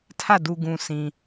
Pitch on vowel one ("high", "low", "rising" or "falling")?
falling